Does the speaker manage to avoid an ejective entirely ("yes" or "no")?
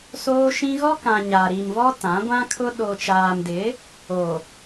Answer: yes